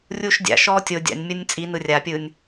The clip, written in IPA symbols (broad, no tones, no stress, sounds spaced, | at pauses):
rʲ uː ʃ dʲ a̰ ʃ ɔː tʲ o dʲ a̰ nʲ mʲ ɤ nʲ t͡sʼ i n ɯ rʲ a pʲ ɯ nʲ